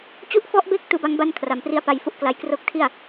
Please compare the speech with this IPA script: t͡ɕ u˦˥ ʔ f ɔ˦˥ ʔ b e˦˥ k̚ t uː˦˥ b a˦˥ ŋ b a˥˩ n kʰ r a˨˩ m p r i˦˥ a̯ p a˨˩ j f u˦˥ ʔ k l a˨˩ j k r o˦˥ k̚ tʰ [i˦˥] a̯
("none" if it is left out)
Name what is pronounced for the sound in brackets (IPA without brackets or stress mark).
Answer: i˥˩